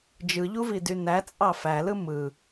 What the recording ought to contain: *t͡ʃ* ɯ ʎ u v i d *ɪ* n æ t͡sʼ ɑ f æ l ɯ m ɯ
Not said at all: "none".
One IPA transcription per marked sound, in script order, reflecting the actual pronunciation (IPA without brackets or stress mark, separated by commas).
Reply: d͡ʒ, y